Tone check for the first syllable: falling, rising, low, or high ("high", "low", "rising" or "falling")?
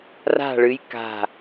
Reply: falling